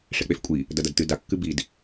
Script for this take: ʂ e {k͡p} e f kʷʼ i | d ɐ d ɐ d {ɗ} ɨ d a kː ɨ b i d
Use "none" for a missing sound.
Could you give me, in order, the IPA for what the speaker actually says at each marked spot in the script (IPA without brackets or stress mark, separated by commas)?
k͡p, t